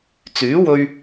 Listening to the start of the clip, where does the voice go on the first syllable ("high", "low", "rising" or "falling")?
rising